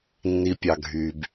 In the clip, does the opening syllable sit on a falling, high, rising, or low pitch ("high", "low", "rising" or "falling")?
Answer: low